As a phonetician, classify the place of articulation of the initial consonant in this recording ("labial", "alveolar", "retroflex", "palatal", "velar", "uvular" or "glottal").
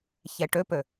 palatal